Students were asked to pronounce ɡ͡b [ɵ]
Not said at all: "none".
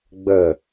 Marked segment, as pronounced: ə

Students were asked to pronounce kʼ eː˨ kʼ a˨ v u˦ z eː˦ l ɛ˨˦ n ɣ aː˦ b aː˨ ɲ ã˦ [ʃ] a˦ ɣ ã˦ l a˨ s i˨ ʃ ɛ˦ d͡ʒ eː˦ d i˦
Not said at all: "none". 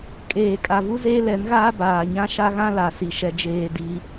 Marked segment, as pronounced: ʃ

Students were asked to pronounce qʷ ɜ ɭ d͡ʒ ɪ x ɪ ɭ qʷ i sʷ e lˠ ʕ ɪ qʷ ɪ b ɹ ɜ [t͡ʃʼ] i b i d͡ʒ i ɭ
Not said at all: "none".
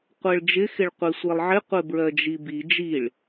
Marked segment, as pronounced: d͡ʒ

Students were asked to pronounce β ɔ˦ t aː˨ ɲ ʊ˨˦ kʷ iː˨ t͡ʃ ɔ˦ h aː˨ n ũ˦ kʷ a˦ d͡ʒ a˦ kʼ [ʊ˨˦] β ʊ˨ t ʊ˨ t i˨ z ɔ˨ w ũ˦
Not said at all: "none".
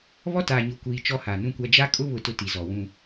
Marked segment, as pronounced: ʊ˦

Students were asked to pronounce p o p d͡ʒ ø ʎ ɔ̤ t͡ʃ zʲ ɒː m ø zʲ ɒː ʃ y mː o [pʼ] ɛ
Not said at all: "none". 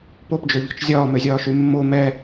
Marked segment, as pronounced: m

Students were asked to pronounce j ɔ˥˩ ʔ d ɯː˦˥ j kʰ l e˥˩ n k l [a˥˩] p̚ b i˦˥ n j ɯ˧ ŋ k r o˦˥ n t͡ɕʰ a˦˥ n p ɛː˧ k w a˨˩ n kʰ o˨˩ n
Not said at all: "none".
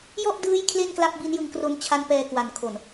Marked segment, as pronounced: a˥˩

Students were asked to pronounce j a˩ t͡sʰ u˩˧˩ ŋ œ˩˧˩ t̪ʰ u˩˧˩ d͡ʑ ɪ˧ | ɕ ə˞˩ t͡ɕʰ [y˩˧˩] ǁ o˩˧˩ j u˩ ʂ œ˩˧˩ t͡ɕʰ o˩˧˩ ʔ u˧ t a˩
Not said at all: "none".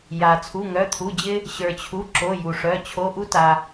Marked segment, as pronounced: u˩˧˩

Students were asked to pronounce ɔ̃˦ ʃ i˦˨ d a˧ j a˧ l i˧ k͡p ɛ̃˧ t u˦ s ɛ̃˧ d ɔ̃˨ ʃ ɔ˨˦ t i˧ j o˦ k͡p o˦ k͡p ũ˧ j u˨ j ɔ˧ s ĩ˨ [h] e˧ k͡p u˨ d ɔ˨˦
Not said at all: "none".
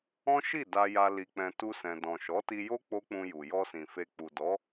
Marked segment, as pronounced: f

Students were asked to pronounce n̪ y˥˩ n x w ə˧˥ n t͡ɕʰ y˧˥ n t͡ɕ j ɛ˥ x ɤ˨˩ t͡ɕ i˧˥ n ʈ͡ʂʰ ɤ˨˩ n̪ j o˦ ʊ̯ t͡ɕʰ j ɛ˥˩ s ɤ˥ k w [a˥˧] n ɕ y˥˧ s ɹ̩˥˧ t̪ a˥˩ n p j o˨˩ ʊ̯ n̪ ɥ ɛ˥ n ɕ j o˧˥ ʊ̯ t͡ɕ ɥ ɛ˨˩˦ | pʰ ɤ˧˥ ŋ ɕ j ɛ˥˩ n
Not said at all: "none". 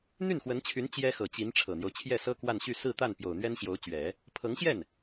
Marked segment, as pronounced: a˥˧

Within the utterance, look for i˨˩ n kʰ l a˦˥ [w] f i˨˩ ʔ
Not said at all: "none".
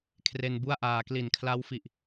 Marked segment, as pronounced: w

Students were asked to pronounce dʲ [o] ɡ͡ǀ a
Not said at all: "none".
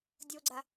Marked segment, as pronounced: o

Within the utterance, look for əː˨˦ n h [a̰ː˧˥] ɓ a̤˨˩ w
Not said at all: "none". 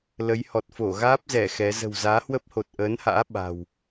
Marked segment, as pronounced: a̰ː˧˥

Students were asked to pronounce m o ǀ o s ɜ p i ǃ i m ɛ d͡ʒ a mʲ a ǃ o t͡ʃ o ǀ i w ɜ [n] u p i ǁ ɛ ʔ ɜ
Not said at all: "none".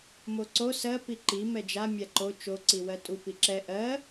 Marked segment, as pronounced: tʼ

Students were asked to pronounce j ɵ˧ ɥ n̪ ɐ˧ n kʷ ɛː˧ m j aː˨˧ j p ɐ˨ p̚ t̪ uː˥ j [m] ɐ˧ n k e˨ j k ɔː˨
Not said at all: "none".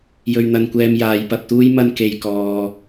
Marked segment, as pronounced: m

